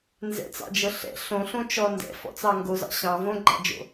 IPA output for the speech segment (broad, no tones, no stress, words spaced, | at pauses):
nzɛ̰t͡sɑ̰d͡ʒɤ ɬɛ̰ ɬõɬõt͡ʃɔ ndɛ̰fɔ̰t͡sɑ ŋɡozɑ̰ ɕɑ̃ võɡ͡ǃɑ̰d͡ʒo̰